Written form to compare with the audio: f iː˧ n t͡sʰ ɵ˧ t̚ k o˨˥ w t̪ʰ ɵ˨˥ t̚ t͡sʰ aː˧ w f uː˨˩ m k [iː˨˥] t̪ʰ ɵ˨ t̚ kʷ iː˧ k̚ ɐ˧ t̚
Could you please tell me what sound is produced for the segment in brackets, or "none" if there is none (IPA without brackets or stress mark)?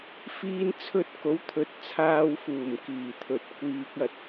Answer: iː˨˩